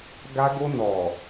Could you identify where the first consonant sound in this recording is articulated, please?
velar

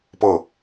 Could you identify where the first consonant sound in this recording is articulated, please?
labial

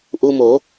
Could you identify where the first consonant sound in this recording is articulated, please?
glottal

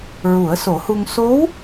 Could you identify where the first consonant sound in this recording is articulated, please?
alveolar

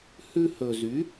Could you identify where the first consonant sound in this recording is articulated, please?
glottal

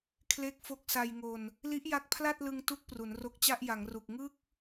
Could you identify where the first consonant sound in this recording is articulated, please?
velar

